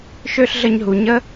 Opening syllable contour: high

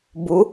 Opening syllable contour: rising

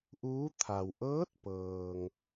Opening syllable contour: rising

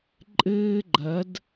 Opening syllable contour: high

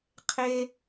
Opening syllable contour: high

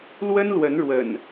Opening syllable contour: high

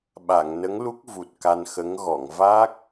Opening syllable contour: low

